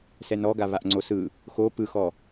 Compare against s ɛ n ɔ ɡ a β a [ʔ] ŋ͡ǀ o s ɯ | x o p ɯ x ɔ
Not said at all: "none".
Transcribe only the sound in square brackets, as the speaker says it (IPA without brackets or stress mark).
ʔ